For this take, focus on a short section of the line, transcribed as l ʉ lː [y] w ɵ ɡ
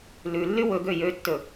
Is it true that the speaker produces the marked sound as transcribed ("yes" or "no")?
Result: yes